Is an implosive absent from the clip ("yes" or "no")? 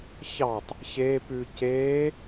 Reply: yes